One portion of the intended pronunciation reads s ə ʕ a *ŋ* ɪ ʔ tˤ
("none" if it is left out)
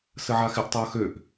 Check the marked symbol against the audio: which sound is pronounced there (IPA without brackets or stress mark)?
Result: x